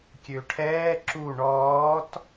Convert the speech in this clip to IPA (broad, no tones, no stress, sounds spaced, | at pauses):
kʲ ø ʈʰ ɛː ǁ u ɳ ɔː t